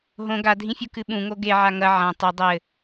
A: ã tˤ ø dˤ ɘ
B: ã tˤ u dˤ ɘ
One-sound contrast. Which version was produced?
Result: B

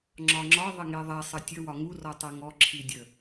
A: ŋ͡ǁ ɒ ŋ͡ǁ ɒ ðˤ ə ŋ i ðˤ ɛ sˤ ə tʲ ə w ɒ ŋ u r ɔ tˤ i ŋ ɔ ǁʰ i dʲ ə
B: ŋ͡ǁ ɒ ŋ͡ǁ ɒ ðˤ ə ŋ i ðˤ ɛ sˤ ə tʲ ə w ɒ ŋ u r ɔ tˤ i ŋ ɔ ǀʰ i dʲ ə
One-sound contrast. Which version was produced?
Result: A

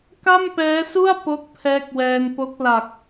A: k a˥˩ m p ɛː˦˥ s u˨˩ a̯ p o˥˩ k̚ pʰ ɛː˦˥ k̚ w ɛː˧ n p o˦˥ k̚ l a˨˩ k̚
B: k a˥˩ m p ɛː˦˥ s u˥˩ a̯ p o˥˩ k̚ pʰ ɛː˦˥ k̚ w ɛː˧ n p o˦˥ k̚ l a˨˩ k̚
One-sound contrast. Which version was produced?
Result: B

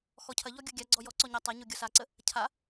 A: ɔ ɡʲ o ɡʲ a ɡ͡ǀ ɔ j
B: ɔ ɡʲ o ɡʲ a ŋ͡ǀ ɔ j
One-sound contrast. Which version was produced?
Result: A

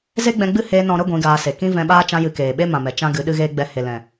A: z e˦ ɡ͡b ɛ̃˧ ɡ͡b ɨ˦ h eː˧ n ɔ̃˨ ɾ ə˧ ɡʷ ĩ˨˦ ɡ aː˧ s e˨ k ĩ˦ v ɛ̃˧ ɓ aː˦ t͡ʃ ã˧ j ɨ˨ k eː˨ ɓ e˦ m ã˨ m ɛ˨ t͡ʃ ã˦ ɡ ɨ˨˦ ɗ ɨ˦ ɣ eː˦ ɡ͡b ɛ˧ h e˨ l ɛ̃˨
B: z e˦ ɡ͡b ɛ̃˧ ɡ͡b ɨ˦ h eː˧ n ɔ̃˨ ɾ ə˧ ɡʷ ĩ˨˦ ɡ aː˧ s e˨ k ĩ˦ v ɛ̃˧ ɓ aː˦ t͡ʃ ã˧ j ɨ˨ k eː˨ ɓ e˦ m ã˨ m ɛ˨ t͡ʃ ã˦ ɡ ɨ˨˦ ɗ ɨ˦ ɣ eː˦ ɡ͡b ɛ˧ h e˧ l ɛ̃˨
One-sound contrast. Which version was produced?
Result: A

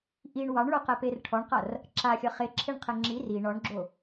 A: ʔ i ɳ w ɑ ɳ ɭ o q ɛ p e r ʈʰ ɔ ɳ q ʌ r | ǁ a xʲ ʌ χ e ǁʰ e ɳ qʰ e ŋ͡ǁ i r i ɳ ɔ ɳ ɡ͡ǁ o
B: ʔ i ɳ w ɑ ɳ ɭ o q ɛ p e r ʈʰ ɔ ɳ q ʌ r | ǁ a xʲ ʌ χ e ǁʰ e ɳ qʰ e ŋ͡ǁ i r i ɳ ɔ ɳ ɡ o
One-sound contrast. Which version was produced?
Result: A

